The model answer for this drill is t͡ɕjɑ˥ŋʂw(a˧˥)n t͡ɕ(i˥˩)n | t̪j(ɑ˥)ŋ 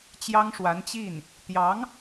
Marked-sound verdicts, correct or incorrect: correct, correct, incorrect

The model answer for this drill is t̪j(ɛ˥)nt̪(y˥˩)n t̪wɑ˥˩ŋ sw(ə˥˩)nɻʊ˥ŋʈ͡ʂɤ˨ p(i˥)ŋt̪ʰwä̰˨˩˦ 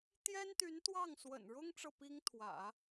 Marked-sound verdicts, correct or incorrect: correct, incorrect, incorrect, correct

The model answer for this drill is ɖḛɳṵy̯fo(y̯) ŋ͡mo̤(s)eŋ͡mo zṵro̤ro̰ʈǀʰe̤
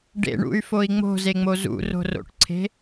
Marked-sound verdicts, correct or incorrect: incorrect, incorrect

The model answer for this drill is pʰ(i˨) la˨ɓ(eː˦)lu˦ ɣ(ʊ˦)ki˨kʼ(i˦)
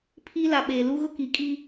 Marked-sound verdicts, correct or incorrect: incorrect, incorrect, correct, correct

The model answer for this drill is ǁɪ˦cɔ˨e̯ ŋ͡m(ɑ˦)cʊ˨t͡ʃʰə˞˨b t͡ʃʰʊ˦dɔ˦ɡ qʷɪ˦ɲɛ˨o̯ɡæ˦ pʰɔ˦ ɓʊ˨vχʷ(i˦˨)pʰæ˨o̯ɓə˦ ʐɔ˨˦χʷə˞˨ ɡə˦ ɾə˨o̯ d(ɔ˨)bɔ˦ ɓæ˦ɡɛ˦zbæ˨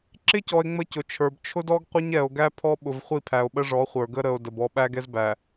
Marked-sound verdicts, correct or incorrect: incorrect, correct, incorrect

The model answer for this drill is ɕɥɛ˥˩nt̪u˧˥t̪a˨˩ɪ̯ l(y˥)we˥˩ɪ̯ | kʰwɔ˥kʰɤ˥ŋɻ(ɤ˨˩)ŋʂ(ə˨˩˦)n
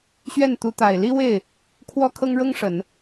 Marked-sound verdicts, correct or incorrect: incorrect, incorrect, correct

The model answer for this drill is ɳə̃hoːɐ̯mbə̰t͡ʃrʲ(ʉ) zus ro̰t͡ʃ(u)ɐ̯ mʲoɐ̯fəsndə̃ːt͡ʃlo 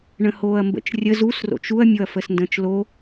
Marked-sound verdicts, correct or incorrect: incorrect, correct

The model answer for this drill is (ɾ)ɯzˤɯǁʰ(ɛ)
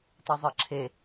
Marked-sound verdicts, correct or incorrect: incorrect, incorrect

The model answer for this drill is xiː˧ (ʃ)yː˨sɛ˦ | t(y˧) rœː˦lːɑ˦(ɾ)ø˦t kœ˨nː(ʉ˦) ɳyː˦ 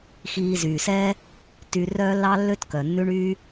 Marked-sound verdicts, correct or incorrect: incorrect, correct, incorrect, correct

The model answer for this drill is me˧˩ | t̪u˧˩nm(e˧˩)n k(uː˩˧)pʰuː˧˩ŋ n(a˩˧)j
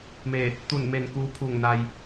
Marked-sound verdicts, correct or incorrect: correct, incorrect, incorrect

